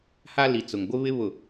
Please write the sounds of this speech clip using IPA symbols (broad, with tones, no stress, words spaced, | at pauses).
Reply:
ha˦ li˨t͡sʊ˨ŋɡʷɪ˦βɪ˦ βʊ˨